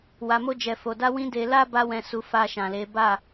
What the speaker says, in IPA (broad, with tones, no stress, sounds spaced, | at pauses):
w a˨ m o˧ d͡ʒ ɛ˨ f o˨ d a˧ w ĩ˧ d e˧ l a˦ b a˧ w ɛ̃˧ s u˧ f a˧ ʃ ã˨ l e˨˦ b a˦˨